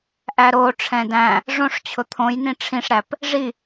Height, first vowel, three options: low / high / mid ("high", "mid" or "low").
low